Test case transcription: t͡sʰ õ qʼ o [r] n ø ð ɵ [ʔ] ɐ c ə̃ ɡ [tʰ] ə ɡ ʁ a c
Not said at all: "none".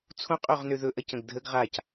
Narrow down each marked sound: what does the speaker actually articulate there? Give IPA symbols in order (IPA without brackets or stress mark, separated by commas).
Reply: ʁ, ʔ, dʱ